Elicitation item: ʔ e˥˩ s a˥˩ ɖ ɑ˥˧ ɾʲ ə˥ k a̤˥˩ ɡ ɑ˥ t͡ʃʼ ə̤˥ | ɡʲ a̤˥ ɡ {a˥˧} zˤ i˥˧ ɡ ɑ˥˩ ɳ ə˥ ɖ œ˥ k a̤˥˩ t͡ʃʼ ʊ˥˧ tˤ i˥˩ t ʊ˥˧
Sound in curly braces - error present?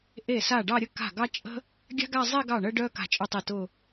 no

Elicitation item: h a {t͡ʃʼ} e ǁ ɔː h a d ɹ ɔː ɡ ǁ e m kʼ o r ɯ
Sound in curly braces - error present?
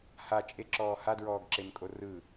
no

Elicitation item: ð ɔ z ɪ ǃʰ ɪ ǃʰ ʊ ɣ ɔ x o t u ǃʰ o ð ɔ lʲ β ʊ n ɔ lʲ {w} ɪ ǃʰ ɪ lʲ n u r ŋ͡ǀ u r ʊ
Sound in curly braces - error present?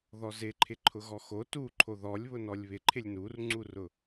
yes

